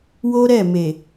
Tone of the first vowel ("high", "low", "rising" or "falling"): high